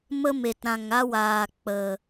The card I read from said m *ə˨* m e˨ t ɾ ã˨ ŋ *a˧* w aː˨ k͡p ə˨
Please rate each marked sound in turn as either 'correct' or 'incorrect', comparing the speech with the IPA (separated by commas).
incorrect, incorrect